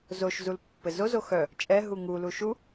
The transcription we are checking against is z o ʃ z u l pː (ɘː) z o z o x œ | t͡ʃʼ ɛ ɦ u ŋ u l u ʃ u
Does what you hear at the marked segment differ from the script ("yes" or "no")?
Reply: yes